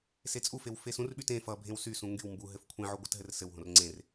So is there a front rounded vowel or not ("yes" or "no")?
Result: yes